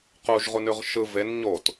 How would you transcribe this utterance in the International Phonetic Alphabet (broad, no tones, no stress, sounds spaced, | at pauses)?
q u ʒ ʁ u n ʉ ʁ ʃ ɯ v e n ɲ o t